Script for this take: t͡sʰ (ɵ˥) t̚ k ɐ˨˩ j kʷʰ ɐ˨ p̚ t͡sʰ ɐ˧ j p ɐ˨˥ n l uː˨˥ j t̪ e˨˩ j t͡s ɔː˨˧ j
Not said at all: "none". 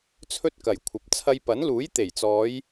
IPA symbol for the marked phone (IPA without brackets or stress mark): ɵ˥